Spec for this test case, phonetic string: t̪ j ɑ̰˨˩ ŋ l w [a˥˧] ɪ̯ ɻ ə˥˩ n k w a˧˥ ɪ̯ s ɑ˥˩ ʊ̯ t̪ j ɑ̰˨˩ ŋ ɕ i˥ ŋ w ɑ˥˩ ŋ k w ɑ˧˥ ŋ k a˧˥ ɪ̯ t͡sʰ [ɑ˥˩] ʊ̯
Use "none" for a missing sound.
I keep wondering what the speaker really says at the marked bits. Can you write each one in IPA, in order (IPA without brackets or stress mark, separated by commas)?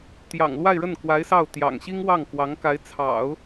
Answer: a˥˧, ɑ̰˨˩˦